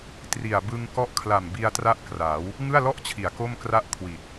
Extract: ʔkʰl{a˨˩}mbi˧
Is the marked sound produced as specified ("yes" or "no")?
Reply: yes